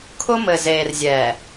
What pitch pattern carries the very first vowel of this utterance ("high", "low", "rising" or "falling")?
high